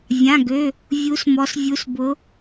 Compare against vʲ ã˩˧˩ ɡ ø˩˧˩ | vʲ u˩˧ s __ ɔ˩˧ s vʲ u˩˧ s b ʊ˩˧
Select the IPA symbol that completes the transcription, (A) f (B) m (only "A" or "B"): B